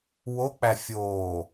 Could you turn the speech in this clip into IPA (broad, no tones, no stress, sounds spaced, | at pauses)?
w o k͡p æ fʲ oː